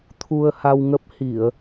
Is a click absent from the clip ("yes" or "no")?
yes